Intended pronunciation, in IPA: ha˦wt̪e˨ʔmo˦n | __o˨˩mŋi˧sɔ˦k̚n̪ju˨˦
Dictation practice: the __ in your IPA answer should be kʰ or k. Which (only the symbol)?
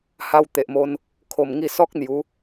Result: kʰ